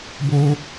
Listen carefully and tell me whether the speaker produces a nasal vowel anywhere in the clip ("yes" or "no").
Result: no